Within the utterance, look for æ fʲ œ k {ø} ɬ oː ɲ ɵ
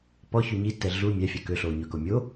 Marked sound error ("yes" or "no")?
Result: no